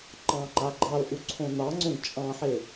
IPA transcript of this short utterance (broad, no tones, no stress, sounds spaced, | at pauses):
ǃ ɑ̃ ŋ͡ǃ a ɡ͡ǃ ɑ l ʔ u ǀʰ õ n ɑ ŋ͡ǀ õ ɡ t͡ʃʼ ɑ̃ ħ e